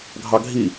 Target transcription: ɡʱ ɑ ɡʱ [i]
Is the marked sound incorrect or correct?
correct